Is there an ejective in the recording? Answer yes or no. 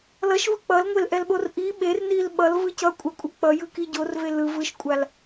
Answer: yes